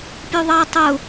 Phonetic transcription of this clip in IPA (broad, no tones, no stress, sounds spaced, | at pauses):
pʲ u ðˤ ɑ tˤ ʊ